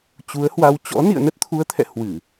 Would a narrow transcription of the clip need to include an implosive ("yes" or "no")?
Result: no